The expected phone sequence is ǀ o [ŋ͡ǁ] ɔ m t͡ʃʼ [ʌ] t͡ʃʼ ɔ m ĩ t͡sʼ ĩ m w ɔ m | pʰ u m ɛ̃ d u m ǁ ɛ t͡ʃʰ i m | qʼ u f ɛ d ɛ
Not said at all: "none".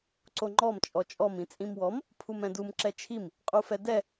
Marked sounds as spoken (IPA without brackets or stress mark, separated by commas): ŋ͡ǃ, ɔ